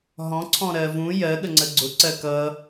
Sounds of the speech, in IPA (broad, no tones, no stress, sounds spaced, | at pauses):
ɦ ɔ̃ ǀʰ ɔ̃ ɾ ɜ v ũ j ɜ ɠ ə ŋ͡ǀ ə ɡ͡ǀ ʊ ǀ ɜ k ʌ